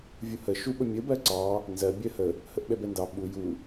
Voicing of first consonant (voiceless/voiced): voiced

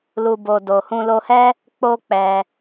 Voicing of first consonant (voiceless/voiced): voiced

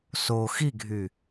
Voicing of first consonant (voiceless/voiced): voiceless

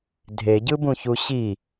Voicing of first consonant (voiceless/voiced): voiced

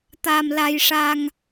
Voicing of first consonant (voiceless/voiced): voiceless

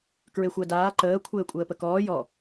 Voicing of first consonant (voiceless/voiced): voiceless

